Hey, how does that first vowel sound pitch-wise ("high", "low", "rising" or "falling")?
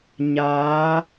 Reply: rising